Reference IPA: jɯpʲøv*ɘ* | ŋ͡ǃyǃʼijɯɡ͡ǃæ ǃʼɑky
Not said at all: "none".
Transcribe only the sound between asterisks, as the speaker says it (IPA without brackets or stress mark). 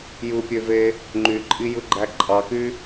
e